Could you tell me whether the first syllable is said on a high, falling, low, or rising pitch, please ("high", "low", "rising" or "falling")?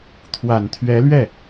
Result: low